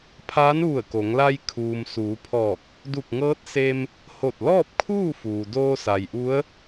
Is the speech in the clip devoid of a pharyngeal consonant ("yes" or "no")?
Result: yes